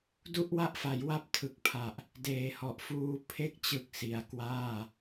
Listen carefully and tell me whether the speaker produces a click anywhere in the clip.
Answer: no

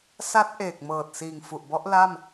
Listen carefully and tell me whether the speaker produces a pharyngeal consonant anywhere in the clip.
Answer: no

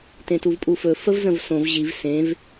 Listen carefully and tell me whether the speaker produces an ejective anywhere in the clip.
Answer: yes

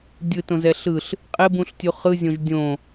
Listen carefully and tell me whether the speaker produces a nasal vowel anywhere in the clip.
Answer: yes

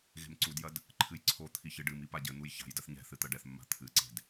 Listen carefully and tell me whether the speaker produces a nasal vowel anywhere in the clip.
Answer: no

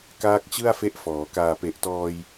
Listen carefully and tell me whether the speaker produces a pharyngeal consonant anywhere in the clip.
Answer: no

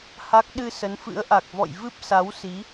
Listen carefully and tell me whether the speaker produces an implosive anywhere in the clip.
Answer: yes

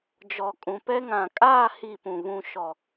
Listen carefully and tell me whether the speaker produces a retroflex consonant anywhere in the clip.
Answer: no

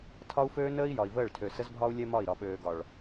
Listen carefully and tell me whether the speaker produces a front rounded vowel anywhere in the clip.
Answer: yes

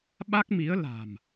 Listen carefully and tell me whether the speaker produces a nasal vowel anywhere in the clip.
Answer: no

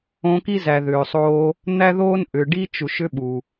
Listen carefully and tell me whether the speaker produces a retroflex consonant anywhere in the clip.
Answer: yes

